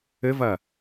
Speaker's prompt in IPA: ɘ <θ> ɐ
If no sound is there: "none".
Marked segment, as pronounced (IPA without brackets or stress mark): v